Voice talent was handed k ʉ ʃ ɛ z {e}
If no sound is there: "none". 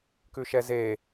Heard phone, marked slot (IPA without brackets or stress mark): e